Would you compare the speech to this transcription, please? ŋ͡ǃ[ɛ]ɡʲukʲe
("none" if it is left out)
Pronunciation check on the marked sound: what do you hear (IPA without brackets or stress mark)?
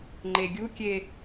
e